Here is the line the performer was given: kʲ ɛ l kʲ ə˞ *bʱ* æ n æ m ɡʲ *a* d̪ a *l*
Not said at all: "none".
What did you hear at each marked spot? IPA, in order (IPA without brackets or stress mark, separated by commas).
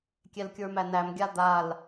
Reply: m, a, l